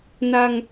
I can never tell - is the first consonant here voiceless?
no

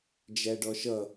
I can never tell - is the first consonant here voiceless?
no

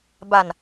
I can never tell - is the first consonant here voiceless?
no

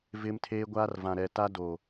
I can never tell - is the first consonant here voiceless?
no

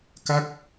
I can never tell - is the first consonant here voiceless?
yes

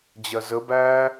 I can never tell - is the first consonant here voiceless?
no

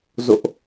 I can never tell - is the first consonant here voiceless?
no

